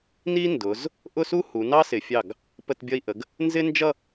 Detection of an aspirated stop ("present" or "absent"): absent